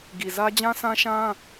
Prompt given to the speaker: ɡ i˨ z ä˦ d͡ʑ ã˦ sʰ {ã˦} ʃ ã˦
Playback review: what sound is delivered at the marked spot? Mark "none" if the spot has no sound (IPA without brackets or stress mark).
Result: ã˦